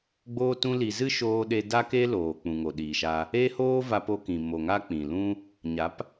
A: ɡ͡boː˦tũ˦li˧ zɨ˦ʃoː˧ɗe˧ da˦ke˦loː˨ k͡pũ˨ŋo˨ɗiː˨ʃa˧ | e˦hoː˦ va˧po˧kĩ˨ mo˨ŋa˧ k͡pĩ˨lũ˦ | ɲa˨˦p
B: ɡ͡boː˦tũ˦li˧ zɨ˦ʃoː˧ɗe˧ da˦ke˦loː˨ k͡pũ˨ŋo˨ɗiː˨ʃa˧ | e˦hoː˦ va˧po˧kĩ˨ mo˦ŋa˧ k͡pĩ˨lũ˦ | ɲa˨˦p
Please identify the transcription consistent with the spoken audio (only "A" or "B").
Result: A